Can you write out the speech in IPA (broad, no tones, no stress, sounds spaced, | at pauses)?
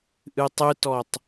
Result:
ʔ ɨ tˤ ɨ t ɔ tˤ